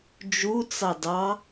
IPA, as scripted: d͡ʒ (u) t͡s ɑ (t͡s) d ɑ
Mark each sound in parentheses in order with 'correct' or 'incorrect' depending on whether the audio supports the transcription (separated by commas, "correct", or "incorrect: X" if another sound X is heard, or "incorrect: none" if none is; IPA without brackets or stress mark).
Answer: correct, incorrect: none